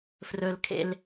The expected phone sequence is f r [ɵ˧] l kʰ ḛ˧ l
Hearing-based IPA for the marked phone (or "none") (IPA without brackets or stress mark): ɵ˧